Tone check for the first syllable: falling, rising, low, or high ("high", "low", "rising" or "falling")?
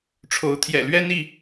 rising